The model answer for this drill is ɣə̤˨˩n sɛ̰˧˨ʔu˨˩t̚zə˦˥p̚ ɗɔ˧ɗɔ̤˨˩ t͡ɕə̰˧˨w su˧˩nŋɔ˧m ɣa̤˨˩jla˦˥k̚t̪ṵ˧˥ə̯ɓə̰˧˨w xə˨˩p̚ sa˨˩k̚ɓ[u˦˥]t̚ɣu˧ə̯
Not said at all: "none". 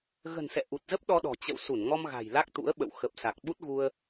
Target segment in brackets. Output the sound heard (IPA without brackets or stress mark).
u˦˥